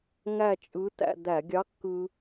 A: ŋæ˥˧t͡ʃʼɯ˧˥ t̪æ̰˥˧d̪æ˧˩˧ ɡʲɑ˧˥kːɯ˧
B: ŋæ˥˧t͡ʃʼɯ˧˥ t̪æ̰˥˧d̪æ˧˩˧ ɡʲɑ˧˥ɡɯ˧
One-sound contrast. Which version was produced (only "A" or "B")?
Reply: A